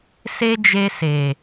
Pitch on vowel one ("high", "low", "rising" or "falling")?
high